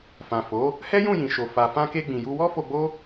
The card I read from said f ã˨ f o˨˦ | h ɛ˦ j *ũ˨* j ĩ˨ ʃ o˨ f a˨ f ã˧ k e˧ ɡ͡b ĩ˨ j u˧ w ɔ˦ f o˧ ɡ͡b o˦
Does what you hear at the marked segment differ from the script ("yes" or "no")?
yes